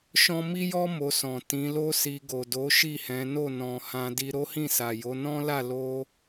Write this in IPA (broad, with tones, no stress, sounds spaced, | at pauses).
ʃ ɔ̃˦ m i˦ j ɔ˦ m o˧ s ɔ̃˨ t ĩ˨˦ l o˦ s i˧ ɡ o˨ d o˨˦ ʃ i˦˨ h ɛ̃˨˦ n o˦˨ n ɔ̃˨ h ã˧ d i˧ ɾ o˦ h ĩ˦˨ s a˨ j o˨˦ n ɔ̃˦ l a˦˨ l o˧